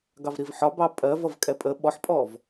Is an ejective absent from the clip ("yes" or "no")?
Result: no